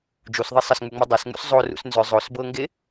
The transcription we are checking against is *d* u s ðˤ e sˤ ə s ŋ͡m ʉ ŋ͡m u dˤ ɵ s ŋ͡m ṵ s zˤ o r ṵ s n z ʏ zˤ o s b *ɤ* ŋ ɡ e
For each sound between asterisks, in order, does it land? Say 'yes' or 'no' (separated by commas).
no, yes